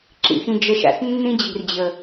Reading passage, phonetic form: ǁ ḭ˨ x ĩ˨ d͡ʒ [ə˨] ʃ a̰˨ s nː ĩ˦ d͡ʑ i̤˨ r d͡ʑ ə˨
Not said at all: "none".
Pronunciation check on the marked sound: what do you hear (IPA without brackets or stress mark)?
ə˨